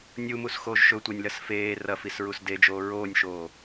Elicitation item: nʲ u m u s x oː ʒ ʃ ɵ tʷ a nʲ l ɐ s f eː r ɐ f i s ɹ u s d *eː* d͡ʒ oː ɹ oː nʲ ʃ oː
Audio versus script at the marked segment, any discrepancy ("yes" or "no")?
yes